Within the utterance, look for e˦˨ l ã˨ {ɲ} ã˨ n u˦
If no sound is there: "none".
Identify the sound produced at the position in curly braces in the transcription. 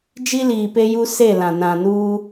n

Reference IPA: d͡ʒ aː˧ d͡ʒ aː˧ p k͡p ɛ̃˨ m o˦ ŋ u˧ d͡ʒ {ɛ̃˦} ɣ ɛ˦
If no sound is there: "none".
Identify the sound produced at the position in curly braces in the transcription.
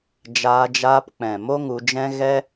ɛ̃˦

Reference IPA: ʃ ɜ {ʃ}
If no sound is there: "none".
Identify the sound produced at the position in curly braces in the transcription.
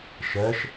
ʃ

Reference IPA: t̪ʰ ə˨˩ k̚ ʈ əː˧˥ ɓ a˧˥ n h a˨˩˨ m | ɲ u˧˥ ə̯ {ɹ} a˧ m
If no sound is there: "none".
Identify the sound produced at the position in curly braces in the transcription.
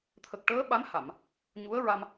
ɹ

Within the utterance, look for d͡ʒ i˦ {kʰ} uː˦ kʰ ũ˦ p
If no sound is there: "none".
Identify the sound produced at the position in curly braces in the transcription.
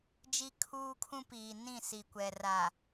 kʰ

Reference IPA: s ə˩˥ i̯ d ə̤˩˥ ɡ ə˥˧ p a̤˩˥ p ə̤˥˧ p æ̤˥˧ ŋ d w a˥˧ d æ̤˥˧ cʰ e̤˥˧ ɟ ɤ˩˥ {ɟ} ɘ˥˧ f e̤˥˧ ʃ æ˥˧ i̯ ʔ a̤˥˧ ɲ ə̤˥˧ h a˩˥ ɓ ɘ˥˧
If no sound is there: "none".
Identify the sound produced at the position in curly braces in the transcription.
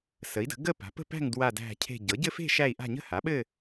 ɟ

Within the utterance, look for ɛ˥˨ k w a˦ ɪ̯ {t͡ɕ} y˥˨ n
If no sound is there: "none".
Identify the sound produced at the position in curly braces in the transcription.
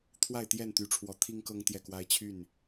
t͡ɕʰ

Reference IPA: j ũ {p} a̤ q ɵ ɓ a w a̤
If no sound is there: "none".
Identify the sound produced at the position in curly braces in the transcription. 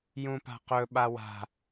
p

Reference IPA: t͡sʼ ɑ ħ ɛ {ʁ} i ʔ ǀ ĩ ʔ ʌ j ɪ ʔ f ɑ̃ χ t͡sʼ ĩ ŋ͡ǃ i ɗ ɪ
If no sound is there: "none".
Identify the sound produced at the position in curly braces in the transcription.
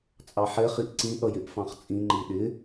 χ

